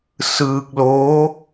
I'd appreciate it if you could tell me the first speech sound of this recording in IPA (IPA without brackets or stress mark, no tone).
s